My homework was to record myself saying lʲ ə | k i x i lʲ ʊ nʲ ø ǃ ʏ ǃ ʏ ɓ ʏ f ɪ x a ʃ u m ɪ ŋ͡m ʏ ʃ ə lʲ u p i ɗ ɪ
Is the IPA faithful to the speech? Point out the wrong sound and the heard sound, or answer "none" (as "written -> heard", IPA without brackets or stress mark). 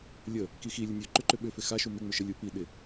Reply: none